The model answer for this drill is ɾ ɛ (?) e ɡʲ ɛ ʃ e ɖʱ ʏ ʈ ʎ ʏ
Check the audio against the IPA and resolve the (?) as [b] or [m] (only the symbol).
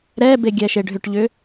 b